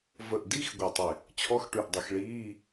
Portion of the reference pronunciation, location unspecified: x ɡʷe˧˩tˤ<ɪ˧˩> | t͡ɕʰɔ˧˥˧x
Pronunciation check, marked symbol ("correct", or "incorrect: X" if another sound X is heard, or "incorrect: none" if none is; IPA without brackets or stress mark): correct